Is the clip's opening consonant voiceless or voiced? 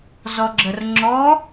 voiced